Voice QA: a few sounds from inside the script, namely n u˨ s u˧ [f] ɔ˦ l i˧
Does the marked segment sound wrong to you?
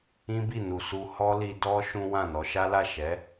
yes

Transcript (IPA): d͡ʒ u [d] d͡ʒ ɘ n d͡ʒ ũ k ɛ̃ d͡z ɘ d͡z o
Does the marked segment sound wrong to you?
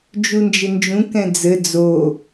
yes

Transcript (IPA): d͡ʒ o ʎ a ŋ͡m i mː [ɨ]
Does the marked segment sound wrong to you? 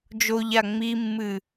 no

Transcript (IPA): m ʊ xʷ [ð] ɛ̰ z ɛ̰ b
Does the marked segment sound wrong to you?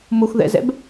no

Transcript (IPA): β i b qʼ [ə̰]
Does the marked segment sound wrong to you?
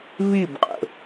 no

